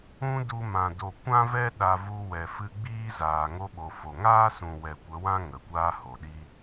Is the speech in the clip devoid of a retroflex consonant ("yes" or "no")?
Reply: yes